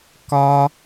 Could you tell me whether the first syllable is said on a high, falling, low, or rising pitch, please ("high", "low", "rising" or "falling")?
high